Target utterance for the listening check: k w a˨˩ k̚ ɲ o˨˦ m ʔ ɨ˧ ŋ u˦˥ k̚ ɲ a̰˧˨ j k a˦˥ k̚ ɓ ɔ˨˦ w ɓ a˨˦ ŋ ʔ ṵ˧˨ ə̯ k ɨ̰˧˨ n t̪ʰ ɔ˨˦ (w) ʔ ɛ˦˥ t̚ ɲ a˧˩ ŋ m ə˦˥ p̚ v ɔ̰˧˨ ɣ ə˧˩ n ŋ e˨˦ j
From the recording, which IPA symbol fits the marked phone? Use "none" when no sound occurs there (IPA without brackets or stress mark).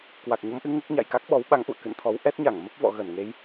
w